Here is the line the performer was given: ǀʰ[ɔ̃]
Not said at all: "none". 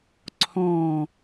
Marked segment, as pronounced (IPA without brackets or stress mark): ɔ̃